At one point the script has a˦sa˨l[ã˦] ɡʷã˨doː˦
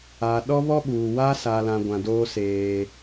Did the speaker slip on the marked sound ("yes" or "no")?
yes